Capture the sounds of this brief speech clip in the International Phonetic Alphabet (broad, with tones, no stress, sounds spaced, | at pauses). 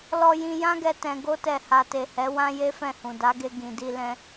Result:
l ɔ˧ j ĩ˧ j ã˦ ɡ ɛ˧ t ɛ̃˧ ɡ o˦ t ɛ˧ h a˨ t e˨ h ɛ˨˦ w ã˦ j e˦ f ɛ̃˦˨ h ũ˨ d a˨˦ ɡ e˧ ɡ ĩ˨ d i˧ l ɛ̃˧